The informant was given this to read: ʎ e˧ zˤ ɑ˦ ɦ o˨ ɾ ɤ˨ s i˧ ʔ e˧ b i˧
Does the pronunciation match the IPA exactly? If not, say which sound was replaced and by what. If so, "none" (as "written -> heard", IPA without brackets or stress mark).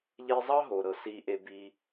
none